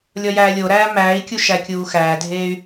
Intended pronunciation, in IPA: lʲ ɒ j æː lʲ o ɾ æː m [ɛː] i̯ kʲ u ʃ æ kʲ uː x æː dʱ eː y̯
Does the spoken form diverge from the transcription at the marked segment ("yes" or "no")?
yes